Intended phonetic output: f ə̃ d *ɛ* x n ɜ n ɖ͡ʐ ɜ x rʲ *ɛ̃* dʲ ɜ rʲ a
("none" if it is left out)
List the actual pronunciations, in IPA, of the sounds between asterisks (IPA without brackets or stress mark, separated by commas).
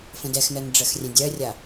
ɛ, ɛ̃